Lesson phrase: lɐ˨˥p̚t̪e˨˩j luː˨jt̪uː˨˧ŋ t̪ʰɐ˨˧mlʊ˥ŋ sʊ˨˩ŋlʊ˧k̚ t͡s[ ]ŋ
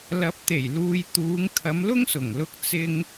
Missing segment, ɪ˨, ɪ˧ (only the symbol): ɪ˧